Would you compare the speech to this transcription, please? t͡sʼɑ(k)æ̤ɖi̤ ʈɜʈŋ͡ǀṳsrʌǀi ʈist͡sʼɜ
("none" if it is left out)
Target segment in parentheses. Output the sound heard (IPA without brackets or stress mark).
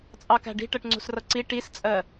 k